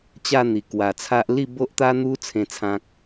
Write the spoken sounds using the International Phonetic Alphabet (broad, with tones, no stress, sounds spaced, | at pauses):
t͡ɕ a˥˧ n̪ i˨˩ k w a˨˩ t͡sʰ a˦ ʔ l i˥˧ b o˦ ʔ t̪ a˦ n̪ u˦ t͡sʰ ẽ˥˧ t͡sʰ ã˦ k̚